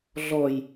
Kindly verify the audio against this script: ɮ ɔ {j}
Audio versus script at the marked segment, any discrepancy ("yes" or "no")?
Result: no